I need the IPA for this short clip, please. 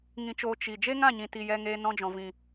ŋ ĩ˧ t͡ʃ oː˧ t͡ʃ i˨ d͡ʒ e˦ ŋ ã˦˨ ɲ ĩ˨ t i˨ j ɛ˧ ŋ eː˧ n ɔ̃˧ d͡ʒ ɔ̃˨ v ĩ˨

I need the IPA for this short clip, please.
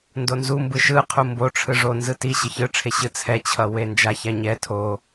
n d o n z u m b ɯ ʃ ɯ qʰ u m b o ʈ͡ʂʰ ɯ ʐ o n z ɯ t i ɕ ɯ ç ɯ ʈ͡ʂʰ e ɕ ɯ t͡sʰ ɛ t͡ɕʰ ʌ w e n d͡ʒ a ç a ɲ ɛ tʰ o

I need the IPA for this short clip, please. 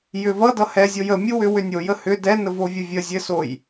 j ʏ v ʌ d ʌ h ɛ zʲ o j ə mʲ u w ʏ w ʏ nʲ o j ə h ʏ d ɛ n ə v o vʲ ə vʲ ə zʲ ɘ s o j

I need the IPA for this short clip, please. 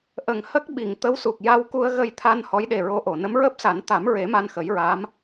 ʔ ə˨˩ ŋ h ə˦˥ k̚ ɓ i˨˩˨ ŋ t̪ ə˧˥ w s u˨˩ k̚ j a˧ w k u˧ ə̯ ɣ ə˧ j t̪ʰ a˧ n h ɔ˧˥ j ɗ e˨˩ ɹ o˧˥ ʔ o˨˩˨ n ə˧˥ m ɹ əː˦˥ p̚ s a˨˩˦ n t̪ a˨˩˦ m ɹ e˨˩˦ m a˧ n x ə˨˩˦ j ɹ a˧˥ m

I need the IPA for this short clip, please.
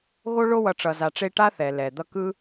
ɣ o˦ ɭ o˦ w ʌ˨ ʈ͡ʂ ʌ˨ z a˨ ʈ͡ʂ e˦ ʈ a˦ θ ɛ˩ l ɛ˩ d̪ ʌ˦ k ɯ˥

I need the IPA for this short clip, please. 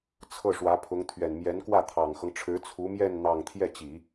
t͡sʰ ɤ˥˩ ʂ w ä˧˥ pʰ ʊ˧˥ ŋ t̪ʰ ɥ ɛ˨˩ n m j ɛ˧˥ n k w ä˥˩ t̪ʰ ɑ˨˩ ŋ x ɤ˦ ŋ ʈ͡ʂʰ ɻ̩˧˥ t͡sʰ u˧˥ m j ɛ˥˧ n n̪ ɑ˥˧ ŋ t̪ʰ j ɛ˥˩ t͡ɕ i˨˩˦

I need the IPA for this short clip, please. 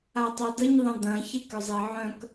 a tˤ œ d ə ɲ ðˤ ə̃ d̪ ɐ̃ ç e k ʏ zˤ e ʕ œ̃ k

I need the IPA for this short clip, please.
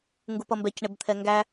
ŋ ɡ u p ʌ m b ɛ c ɳ ɪ b t̪ʰ ɛ ŋ ɡ æ

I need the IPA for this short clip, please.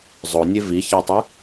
zˤ o nʲ e v i ç a tˤ ɯ

